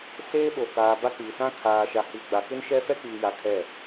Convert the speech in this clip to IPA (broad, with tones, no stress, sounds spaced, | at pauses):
s eː˦ ɓ o˨ k aː˨ b a˦ k͡p i˨ s ã˦ kʰ aː˨ ʃ a˨ h i˨ ɡ͡b a˨ k ɪ˦ n ʃ ɛ˦ f ɛ˦ k͡p iː˨ j a˨ kʰ ɛ˦˨